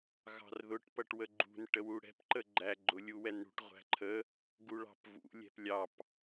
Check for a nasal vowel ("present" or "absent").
absent